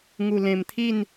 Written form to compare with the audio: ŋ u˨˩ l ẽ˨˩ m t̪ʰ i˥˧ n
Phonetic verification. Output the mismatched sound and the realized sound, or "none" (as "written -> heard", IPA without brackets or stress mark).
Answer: none